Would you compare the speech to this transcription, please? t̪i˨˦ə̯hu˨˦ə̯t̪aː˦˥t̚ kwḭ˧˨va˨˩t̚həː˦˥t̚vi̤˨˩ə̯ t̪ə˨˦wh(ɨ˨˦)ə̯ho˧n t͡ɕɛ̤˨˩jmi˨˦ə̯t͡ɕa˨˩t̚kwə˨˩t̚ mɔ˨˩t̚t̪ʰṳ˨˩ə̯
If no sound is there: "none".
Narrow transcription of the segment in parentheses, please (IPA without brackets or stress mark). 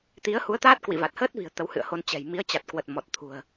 ɨ̰˧˨